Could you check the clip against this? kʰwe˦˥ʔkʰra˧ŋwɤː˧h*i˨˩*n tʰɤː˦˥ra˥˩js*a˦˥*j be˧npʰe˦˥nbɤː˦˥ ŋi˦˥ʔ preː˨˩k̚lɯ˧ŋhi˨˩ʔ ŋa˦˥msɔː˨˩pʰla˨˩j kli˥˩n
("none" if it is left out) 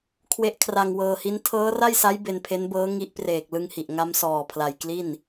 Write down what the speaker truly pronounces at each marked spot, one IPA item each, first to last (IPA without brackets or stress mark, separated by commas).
i˦˥, a˦˥